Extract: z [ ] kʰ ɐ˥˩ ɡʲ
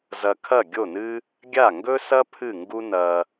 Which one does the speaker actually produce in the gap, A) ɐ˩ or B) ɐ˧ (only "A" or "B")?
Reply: B